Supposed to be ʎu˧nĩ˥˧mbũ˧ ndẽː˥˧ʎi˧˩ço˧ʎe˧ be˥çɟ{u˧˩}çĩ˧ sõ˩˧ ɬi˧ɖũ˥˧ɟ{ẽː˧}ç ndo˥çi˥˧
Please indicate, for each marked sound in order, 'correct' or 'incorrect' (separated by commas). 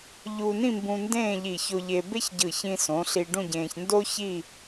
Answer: incorrect, correct